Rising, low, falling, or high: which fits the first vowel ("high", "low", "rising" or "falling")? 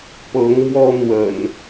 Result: rising